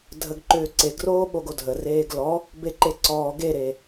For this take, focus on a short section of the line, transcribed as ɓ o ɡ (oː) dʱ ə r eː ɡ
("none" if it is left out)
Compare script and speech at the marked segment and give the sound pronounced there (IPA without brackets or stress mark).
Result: o